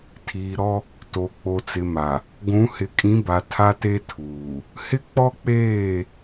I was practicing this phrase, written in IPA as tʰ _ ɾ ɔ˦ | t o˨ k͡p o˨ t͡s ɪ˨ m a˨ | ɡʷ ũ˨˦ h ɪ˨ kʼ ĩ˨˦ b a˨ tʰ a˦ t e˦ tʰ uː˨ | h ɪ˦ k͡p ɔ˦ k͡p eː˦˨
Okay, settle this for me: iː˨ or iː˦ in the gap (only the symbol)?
iː˨